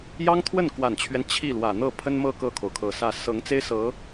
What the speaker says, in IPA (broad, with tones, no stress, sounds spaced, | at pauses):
j ɑ˥ ŋ t̪ʰ w ə˥˩ n k w a˨˩ n t͡ɕʰ ɥ ɛ˦ n t͡ɕʰ i˥˩ l w ä˨˩ n̪ ɤ˥˩ pʰ ə˥ n m ɤ˥˧ k ɤ˥˩ kʰ o˩ ʊ̯ kʰ ɤ˨˩ s ä˥˩ s ɤ˧˥ ŋ t͡s e˥ ɪ̯ s ɤ˧˥